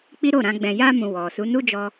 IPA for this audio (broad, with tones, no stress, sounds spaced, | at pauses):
k͡p i˦ ɾ o˦˨ ɾ ã˧ ɡ͡b ɛ̃˨ j a˧ m ũ˨ w ɔ˨ s u˨˦ n u˦ d͡ʒ ɔ˧